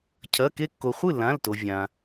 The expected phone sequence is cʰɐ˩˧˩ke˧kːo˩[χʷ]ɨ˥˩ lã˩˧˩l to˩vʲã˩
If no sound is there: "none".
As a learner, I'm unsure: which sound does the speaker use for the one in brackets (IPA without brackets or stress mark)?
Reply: χʷ